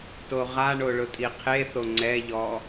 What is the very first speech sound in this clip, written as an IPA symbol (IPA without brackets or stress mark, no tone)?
t